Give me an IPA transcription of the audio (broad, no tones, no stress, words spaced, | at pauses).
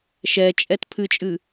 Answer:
ʃɛt͡ʃʼɛt pʰɨt͡ʃʼɨ